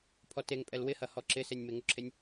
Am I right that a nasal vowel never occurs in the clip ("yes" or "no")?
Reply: yes